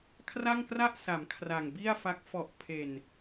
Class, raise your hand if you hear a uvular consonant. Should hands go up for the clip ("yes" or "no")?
no